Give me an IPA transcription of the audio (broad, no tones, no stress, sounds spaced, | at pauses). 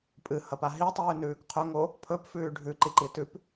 pʼ ɨ h ɐ p a ɦ i tˤ ʉː n ʉː k qʰ ɵ ŋ o | pʰ ɵ p f ʉː ɖʱ ʉ ǃ i ǃ i t ʉ p